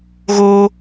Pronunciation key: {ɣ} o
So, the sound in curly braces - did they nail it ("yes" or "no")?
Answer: yes